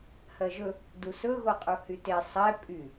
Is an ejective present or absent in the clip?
present